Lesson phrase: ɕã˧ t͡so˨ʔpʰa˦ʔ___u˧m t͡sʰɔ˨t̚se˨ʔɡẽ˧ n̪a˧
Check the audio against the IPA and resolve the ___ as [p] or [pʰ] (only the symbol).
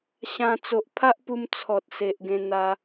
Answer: p